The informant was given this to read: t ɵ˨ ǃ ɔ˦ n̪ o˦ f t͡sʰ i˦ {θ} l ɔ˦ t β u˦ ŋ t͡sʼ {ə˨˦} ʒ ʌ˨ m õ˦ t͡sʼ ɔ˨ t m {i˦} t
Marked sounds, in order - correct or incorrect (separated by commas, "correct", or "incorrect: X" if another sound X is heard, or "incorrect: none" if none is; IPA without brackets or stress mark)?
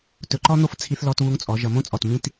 correct, incorrect: ɔ˨˦, incorrect: ĩ˦